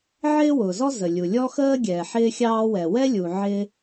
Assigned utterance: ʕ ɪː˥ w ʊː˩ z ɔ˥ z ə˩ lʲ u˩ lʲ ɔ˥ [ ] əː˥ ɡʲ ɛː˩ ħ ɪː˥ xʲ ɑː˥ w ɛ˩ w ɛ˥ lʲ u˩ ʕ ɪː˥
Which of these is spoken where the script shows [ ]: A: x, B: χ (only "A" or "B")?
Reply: A